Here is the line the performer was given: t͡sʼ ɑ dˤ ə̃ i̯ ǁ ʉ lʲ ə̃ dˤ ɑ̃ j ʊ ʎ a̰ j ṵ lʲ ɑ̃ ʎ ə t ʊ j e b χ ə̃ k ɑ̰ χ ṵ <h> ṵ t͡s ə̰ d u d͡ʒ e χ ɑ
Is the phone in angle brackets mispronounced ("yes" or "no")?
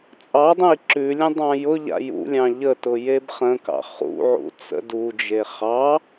yes